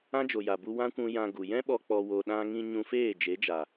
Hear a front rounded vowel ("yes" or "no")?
no